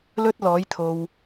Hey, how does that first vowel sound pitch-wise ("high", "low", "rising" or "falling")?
high